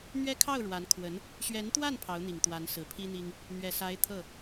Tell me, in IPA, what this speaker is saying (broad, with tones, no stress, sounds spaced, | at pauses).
n̪ ɥ ɛ˥ kʰ ɑ˥˩ ʊ̯ ɻ w a˧˥ n kʰ w ə˧˥ n | ɕ ɥ ɛ˧˥ n t̪ w a˥˩ n pʰ ɑ˧˥ ʊ̯ n̪ i˨˩ ŋ t̪ w a˧˥ n s ɹ̩˨˩ pʰ i˥ n̪ i˥ ŋ | n̪ ɥ ɛ˨˩ s a˧˥ ɪ̯ t̪ʰ ɤ˥˩